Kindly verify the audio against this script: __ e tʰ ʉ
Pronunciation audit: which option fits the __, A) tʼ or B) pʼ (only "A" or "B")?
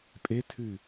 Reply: B